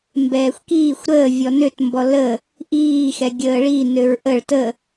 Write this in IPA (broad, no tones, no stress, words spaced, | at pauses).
mbɛːxʷkiːxʷ ɾəː vʲɔnøt mbɔlə | ʔiː xɛɡʲəːɭi nøɹʔəɭ tə